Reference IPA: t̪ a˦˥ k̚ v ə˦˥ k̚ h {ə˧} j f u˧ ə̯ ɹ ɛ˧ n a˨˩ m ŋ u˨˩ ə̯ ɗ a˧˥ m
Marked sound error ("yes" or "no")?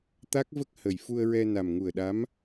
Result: yes